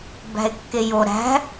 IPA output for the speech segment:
bæ̤e̯kːejo ɾæ̤

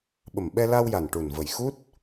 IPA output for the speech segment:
ɓə˨˩mɓɛ˧la˧wja˨˩n ʈu˨˩nvə˨˩jxu˦˥t̚

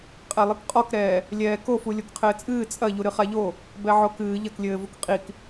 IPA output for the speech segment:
qʼɛlˠɨkqʼɔkɾɛː | lʲɛːkofu lʲokqʰɘːt͡sʼɨː t͡sʼɐ ʎuɾɨχaʎo | bɛʕokɨː ʎɐklʲɘːvuk qʼik

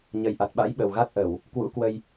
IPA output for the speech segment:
ɲə˨˩jʔa˨˩t̚ɓa̰˧˥j ɓə˨˩wɣa˦˥t̚ ʔə˧˩˨w | kwṵ˧˥kwə˧j

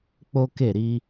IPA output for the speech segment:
k͡po˦ke˦˨ ɾi˧

